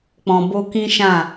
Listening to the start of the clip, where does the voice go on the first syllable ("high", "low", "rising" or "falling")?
low